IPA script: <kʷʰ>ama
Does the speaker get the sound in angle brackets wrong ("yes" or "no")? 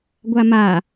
yes